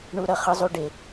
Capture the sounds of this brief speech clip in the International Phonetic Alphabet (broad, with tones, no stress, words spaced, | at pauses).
ɳu˦ɾʌ˩χɯ˦zˤu˦ ɖe˨